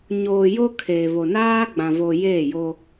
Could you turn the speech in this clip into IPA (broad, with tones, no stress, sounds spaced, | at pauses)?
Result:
ɲ oː˨ j o˦ kʰ eː˨ β o˨ n aː˦ ɡ͡b ã˨ v o˨ j eː˦˨ j o˦